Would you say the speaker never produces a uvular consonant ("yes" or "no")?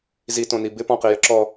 no